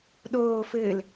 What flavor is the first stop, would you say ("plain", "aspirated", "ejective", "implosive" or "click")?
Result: implosive